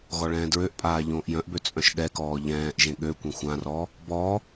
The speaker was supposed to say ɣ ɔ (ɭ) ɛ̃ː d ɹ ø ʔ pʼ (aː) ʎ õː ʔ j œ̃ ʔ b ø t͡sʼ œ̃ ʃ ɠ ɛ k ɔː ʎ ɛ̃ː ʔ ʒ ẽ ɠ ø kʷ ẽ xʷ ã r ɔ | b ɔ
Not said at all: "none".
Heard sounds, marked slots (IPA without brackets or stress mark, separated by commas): ɭ, aː